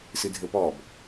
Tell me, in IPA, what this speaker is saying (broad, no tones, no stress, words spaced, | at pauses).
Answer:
sɨdʱɘpɔb